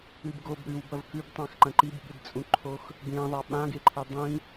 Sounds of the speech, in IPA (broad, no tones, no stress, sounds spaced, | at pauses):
ɨ b ɡ o b ɾ ʉ w b ɐ v k ʉ b tˤ ã x ǃ ɐ̃ ǃ i b ɠ ɨ d t͡sʼ ũ ǃʰ o x | b ẽ ðˤ a ɓ ã ɡ e ǃʰ e dˤ ĩ